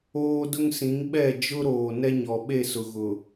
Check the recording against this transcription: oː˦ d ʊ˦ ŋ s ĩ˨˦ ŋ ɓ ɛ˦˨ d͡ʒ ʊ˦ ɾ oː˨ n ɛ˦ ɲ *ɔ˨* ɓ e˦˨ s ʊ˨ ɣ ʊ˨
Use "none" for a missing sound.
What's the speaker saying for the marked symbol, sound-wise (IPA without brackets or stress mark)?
ɔ˨